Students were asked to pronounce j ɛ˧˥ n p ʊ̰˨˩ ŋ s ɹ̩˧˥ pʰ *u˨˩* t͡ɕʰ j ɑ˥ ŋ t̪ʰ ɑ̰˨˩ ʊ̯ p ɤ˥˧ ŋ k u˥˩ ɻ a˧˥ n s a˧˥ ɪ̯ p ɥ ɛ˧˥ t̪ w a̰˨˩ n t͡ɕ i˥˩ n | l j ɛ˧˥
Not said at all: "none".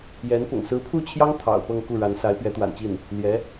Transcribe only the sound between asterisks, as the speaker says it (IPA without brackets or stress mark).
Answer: u˥˩